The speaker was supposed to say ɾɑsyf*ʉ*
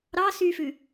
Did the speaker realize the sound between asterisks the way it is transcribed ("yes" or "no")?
yes